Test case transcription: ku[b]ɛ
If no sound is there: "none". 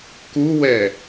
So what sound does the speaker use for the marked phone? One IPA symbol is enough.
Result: w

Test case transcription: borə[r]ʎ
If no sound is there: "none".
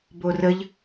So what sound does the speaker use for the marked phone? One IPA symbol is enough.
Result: none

